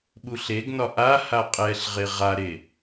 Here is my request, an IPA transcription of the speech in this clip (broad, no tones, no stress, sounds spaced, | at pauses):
ɓ u ɬ e ɡ n ɒ ʔ a h a qʼ ɛ ɬ ʁ e ʁ a ɾ e